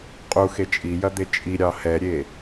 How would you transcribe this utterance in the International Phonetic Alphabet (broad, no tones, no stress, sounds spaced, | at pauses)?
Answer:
qʼ u x e t͡ʃʼ i j ɐ d̪ e t͡ʃʼ i ɾʲ ɑ h ɛ ɾʲ e